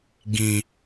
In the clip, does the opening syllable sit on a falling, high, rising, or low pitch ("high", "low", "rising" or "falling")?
low